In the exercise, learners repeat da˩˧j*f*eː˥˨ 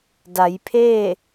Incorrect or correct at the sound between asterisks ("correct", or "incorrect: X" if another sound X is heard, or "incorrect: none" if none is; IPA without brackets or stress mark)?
incorrect: pʰ